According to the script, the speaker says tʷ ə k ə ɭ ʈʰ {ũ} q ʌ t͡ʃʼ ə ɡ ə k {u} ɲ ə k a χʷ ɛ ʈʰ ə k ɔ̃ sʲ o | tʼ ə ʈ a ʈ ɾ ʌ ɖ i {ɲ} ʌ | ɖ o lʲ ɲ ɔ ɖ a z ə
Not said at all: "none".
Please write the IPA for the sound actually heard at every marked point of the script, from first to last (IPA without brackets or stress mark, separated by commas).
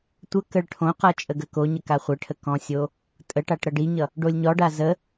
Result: õ, o, ɲ